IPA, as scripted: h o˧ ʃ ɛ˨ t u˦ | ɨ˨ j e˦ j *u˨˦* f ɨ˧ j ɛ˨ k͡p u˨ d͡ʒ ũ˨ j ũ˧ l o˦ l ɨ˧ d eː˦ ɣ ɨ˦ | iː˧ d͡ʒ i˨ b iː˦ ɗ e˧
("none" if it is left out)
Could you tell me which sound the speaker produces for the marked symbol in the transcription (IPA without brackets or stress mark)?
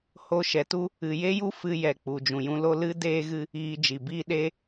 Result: u˦